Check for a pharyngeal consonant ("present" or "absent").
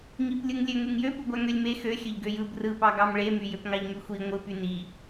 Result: absent